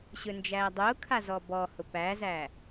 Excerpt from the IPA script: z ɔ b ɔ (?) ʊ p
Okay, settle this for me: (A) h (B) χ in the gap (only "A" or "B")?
A